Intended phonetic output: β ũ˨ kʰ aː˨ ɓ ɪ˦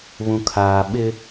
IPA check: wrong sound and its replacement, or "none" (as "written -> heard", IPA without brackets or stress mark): none